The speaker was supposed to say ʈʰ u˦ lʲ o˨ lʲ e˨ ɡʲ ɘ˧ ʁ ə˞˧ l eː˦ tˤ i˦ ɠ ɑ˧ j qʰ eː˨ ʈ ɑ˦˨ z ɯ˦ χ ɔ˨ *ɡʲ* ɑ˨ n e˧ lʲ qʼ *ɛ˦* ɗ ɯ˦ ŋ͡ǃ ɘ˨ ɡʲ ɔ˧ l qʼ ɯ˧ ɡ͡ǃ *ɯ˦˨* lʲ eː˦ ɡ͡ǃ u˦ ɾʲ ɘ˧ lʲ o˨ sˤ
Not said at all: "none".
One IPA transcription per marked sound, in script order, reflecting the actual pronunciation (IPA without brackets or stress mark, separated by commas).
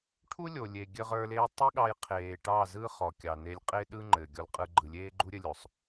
kʲ, e˦, ɯ˨